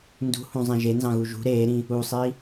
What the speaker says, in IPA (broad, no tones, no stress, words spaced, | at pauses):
ndṳhũzˤẽ ʒenzɑ̃ɣu ʒṳ ɾeːɾĩ | usˤi